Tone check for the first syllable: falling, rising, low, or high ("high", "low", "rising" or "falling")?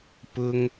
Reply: high